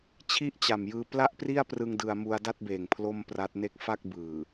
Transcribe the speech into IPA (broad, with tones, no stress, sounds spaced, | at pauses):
t͡ɕʰ i˥˩ ʔ t͡ɕ a˨˩ m j ɯː˧ p l a˥˩ ʔ p r i˥˩ a̯ p r ɯ˧ ŋ d ɯ˧ a̯ m u˧ a̯ d a˥˩ t̚ b eː˨˩ ŋ pʰ l o˥˩ m p r a˦˥ t̚ n e˥˩ k̚ f a˥˩ k̚ b ɯː˨˩